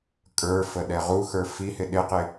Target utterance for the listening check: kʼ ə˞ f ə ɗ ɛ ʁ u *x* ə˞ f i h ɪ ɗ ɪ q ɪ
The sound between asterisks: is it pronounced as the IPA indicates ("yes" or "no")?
yes